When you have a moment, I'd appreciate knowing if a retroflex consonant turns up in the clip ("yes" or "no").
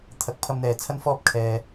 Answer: no